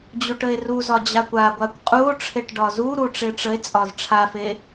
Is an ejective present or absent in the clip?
present